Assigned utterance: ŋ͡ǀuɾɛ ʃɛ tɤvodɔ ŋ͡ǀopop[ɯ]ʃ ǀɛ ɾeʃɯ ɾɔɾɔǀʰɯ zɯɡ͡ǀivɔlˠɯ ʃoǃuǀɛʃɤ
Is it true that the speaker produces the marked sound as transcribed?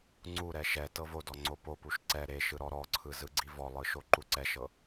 no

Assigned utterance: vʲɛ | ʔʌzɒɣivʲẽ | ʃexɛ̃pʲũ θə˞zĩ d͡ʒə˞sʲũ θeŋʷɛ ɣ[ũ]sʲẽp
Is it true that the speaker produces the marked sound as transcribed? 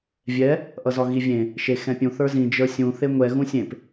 yes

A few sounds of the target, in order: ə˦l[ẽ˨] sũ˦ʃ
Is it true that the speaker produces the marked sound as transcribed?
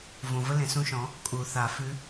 yes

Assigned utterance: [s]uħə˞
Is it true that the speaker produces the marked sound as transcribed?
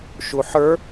no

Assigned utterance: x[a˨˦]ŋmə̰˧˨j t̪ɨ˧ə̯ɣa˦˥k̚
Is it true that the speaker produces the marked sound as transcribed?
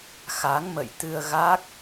yes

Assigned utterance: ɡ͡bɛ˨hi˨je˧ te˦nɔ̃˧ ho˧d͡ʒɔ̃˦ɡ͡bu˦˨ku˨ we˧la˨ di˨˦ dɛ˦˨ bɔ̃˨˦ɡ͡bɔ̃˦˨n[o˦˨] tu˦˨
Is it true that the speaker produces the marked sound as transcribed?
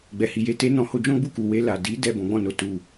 no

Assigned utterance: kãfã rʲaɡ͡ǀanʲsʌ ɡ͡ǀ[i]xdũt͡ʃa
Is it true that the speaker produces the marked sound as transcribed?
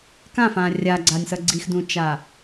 yes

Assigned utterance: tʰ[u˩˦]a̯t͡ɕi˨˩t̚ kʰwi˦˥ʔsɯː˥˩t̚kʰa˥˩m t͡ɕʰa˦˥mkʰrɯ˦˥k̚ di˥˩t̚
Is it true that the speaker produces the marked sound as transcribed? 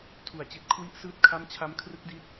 yes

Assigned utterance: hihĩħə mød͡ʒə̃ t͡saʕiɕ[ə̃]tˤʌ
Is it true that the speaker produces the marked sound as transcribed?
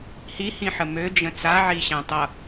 no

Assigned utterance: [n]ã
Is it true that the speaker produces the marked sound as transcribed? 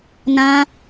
yes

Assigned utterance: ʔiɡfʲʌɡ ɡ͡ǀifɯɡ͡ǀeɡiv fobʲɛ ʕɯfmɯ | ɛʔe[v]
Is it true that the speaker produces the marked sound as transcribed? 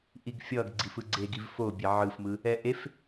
no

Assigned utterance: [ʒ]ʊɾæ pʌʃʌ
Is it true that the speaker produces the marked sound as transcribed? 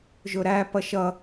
yes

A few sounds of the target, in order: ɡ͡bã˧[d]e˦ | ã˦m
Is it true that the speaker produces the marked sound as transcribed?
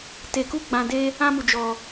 yes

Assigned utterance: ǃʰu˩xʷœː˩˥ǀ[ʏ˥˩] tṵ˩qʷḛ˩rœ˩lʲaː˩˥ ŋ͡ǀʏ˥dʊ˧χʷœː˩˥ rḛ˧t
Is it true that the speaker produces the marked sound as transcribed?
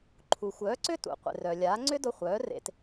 yes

